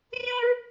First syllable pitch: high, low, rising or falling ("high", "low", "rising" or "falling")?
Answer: high